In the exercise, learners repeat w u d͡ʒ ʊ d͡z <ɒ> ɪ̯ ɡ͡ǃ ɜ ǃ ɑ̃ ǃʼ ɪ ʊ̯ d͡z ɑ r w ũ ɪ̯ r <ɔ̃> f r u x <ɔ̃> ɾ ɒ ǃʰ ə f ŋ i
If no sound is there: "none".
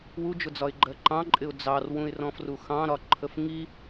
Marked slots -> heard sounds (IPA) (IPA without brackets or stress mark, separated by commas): ɒ, ɔ̃, ɑ̃